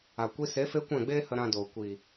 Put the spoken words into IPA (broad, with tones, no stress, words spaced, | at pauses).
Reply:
a˨kʷi˧se˨˦ fe˦kʷɛ̃˦˨ɡ͡beː˦hə˧ ɾã˧doː˨ kʷi˨